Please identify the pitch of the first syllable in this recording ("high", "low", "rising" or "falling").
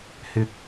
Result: high